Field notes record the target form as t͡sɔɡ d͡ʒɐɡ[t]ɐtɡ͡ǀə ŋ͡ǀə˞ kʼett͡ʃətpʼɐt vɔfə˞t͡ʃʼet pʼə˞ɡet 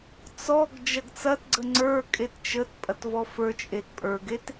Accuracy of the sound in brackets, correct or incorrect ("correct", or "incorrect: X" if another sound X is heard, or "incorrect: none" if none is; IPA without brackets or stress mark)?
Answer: incorrect: t͡s